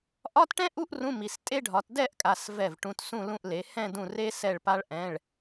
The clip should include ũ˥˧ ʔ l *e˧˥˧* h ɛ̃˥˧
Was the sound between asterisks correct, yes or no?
no